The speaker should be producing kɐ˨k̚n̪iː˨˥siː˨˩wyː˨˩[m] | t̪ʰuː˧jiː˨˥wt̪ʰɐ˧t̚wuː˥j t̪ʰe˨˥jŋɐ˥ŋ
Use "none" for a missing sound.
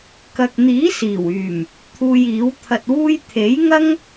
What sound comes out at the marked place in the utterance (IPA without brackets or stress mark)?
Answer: m